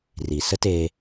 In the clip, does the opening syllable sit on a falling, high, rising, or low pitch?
low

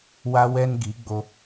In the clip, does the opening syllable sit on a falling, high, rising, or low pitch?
high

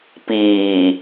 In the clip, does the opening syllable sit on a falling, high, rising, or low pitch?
low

